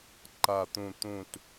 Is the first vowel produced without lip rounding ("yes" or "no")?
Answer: yes